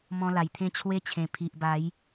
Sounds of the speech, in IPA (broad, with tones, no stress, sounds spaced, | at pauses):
m ɔ̃˧ l a˨˩ j t̪ʰ ẽ˦ t͡ɕʰ w e˧ t͡ɕʰ ẽ˨˩ pʰ i˨ ʔ b a˨˦ j